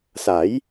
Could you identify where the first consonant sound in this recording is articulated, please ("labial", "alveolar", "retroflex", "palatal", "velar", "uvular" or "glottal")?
alveolar